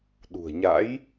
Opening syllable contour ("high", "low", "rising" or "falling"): low